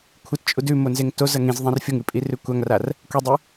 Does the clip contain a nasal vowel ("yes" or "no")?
yes